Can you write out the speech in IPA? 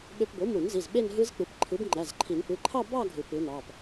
ɓø˧p bo˩˥mu˨˩˦nzi˩˧˩z ɓe˥˧nɦɯ˦˥zk͡pɯ˩˥p ǃʰɯ˩˥bŋ͡ǃæ˩˧˩zǃʰi˨˩˦n pɯ˩˧˩ǃʰɑ˥˧ bɑ˥˧ ɡʱɯ˨˩˦ pɯ˩˥nɑ˩˧˩p

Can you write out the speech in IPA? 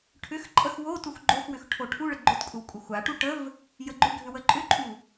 ʈʰʏxǃʼəx wotux ɡ͡ǃoxwʏx ʈʰoʈʰuɭə ɡ͡ǃʏtkʷʼəw kʷʼəxʷaʈu ʈəv | jəɡ͡ǃʏɡʱʏ wəǃʼʏǃʼu

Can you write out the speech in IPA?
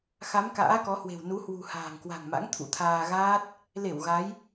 xa˨˦m ka̰ː˧˥kɔ˨˦hwe̤˨˩w nu˨˦hwṳ˨˩ ha̤ː˨˩ŋkwa̤˨˩ŋma̰˧˥ŋ t̪ʰṵ˧˥t̪ʰaː˧ ɣaː˦˥t̚ | le˧˩w ɣa˨˦j

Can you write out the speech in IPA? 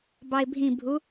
bɑɪ̯bʱĩbʱu

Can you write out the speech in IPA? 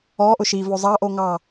ɔʔʊ ʃivo zˤɑʔo ŋɑ

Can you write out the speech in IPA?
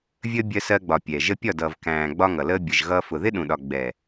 vʲəː˧ bʲɜ˧sɜ˧ɡ͡bɒ˨ pʲɛː˨ʒə˦ pʲɒ˦˨dʌː˨v kæ̃ː˨ ɡ͡bɒ˦ŋʌ˨ləː˦ bʲə˨ʒɣʌː˧ fʊ˨ðɪ˦ɗũ˨ɗɒ˨ ɡ͡bɛː˨

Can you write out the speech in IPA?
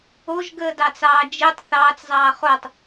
oʒɡəːdɑt͡sɑː d͡ʒitˤ θɑːt͡szˤɑː χotˤ

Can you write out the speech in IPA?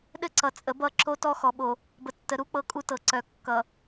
ɗɘ˦ǀʌ˨t͡sʼə˨˦ bʌ˦ǁo˦tɔ˦ xɔ˨ɓo˨ | bə˨tːə˨˦ ɾu˦k͡pɤ˦ kʼu˦tɤ˨ǀœ˨ kːʌ˨

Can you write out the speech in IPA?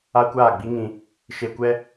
a˦kʷaː˦˨ɡ͡bi˦ŋĩ˧ | ʃe˧kʷɛ˦

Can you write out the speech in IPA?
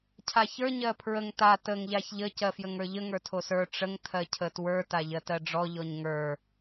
cʰaçə˞ ɲɜpʰɹəŋ ta təŋ ʎaçʎə cɜfjəŋə˞ʎə ŋə˞tʰosə˞ ʈ͡ʂəŋ tʰɜcʰətwə˞ taʎɜtɜɖ͡ʐɔ ʎɔɲŋə˞

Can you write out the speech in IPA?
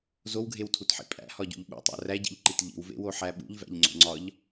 zowɡʱewtʰutħḭ pʼæ̰hɒɟṵʎ ɓṵtˤæ̰ ræɟḭʎǃit ʎḭwvḛwoħæ ɓṵʎvæ̰ʎŋ͡ǀo̰ŋ͡ǀɒʎ

